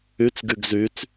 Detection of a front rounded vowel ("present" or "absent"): present